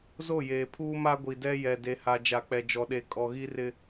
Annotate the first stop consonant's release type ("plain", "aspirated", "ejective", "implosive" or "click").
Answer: aspirated